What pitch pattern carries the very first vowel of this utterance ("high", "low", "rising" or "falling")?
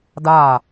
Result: falling